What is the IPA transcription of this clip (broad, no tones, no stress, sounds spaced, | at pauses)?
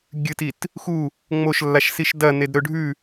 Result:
ɡʲ ɨ t i t | x u | ŋ͡m o ʃ lː a ʃ s i ʃ d ɐ n e d ɾ ɵ ɖʱ ʉ